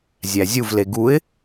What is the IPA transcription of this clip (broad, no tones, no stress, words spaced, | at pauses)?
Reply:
zʲæzʲuvle ɡuɪ̯